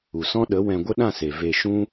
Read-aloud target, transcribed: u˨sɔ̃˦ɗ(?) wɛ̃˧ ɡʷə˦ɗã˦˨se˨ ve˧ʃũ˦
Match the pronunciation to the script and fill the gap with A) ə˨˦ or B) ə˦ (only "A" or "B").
A